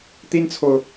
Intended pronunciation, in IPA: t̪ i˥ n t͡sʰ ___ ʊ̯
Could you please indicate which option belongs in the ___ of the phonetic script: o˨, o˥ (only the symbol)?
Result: o˨